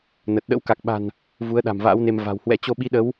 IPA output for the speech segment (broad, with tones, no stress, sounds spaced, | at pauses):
n ə˨˩ t̚ ɗ ə̰˧˥ w k a˨˩ k̚ ɓ a̤˨˩ n | v u˨˦ ə̯ ɗ a̤˨˩ m v a̰ː˧˥ w n e˧ m v a̤˨˩ w h w ɛ̰˧˥ t͡ɕ o˧ ɓ i˨˦ ɗ ə˨˦ w